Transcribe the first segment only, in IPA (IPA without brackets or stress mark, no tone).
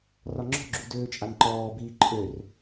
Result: r